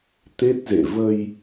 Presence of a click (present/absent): absent